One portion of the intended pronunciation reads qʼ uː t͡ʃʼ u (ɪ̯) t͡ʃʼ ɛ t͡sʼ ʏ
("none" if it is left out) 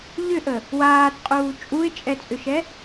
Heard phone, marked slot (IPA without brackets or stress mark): ɪ̯